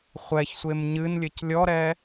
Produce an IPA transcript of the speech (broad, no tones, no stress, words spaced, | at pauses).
χʷɛçsʷem ɲɨn lʲɘclʲɔɾɛ